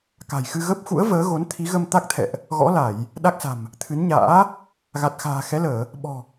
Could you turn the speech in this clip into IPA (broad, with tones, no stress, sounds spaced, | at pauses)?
k a̤˨˩ j x ɨ˧ ɣ ə˦˥ p̚ x ṵ˧˥ ə̯ v əː˨˦ ɣ o˨˦ n t̪ʰ i˨˦ ɣ ə˧ m t̪ a˦˥ k̚ t̪ʰ ɛ̰˧˨ ʔ | ɣ ɔ̰˧˥ l a˧˩˨ j | ɗ a˦˥ k̚ s a̤˨˩ m | t̪ʰ ɨ˨˦ n ɲ a̰ː˧˥ | ɣ a˨˩ t̚ x a̤ː˨˩ x ɛ˨˦ l əː˧˩˨ | ɓ ɔ̤˨˩